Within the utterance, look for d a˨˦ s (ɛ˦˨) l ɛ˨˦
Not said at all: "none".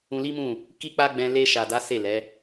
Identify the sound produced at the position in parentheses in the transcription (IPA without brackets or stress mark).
e˦˨